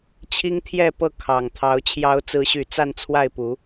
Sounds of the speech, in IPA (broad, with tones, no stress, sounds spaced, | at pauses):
t͡ɕʰ i˦ ŋ t̪ʰ j ɛ˥˨ p ɤ˥˨ kʰ ɑ˨˩ ŋ t̪ʰ ɑ˨˦ ʊ̯ t͡ɕʰ j ɑ˨˦ ʊ̯ t͡s ɹ̩˨˦ ɕ y˨˩ t͡s a˥˨ n t͡sʰ w a˥˨ ɪ̯ p u˨˦